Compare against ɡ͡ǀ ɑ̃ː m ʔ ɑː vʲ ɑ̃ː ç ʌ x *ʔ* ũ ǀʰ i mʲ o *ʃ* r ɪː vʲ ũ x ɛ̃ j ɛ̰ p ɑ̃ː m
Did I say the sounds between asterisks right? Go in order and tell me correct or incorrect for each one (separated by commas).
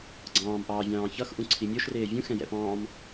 correct, correct